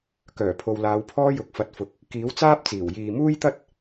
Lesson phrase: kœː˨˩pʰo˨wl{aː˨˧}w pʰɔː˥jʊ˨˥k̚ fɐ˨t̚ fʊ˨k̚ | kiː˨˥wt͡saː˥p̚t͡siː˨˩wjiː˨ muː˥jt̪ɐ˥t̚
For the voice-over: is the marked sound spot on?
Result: yes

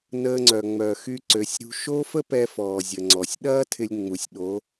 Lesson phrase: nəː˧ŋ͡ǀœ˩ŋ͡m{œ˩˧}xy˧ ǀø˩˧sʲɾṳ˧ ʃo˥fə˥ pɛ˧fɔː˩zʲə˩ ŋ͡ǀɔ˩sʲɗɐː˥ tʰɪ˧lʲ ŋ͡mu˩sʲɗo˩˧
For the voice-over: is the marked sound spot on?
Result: no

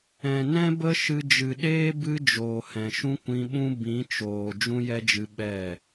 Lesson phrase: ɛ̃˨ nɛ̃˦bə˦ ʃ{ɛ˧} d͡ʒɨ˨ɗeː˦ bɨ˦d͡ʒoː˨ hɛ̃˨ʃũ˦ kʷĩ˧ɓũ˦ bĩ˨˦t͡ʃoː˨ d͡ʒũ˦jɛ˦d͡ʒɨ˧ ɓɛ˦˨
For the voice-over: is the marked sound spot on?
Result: no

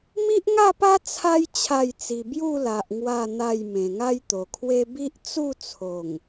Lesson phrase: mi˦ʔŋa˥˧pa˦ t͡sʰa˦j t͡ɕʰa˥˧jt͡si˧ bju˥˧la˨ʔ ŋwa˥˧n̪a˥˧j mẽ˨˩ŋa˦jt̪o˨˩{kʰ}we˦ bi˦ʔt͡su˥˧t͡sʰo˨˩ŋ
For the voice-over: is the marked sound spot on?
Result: yes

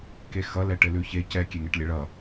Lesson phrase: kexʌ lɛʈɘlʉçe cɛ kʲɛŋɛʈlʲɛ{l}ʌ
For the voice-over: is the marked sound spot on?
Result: no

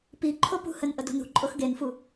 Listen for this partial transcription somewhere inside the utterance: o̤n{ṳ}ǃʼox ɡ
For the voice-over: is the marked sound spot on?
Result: yes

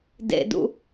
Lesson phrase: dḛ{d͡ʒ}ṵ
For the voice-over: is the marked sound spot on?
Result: no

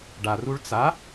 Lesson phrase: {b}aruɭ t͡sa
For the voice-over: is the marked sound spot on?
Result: no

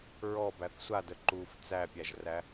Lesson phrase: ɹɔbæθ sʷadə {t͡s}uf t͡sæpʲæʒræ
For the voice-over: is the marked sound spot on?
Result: no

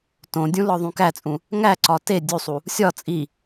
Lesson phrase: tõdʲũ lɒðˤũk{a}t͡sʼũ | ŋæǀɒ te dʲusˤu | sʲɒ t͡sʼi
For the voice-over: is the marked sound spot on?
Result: no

